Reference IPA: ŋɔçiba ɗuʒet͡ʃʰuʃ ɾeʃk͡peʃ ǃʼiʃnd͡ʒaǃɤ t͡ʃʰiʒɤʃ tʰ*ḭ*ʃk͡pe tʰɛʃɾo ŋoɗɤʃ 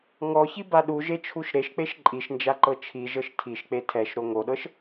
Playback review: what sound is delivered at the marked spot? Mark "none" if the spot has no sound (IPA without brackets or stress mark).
i